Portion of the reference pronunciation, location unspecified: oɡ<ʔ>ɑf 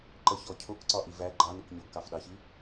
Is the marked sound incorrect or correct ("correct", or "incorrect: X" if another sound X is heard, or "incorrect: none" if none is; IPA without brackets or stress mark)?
incorrect: k